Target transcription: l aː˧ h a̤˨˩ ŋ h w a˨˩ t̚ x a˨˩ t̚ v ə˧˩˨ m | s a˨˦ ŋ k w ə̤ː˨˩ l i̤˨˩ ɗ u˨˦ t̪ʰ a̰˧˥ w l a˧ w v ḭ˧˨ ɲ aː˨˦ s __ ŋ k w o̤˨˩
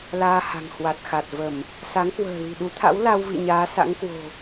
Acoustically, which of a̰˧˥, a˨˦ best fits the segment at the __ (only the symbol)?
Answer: a̰˧˥